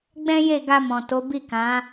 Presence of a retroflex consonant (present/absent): absent